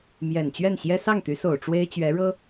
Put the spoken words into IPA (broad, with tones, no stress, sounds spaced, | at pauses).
m j ɛ˨˩ n t͡ɕ ɥ ɛ˥˩ n ɕ j ɛ˥ s ɑ˥˩ ŋ t̪ y˧˥ s o˨˩ ʊ̯ ʈ͡ʂ w e˥ ɪ̯ t͡ɕ ɥ ɛ˧˥ ɻ ɤ˥